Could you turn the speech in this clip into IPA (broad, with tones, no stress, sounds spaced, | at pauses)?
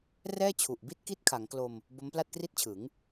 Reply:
r ɛː˥˩ t͡ɕʰ u˨˩ ʔ b i˥˩ t̚ k i˥˩ t̚ kʰ a˩˦ ŋ k l o˧ m | b o˦˥ m p l a˥˩ t̚ k r i˥˩ t̚ t͡ɕʰ ɯ˩˦ ŋ